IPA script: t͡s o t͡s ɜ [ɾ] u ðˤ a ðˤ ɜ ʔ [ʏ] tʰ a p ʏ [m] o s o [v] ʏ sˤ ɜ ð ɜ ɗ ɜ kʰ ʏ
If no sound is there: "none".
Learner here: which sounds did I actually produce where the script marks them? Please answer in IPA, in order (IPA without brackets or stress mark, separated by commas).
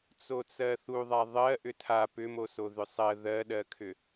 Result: θ, ʏ, m, ð